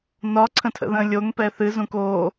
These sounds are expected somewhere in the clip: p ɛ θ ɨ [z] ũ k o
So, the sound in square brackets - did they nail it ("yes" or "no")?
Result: yes